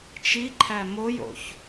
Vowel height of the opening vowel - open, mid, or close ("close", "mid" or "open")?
close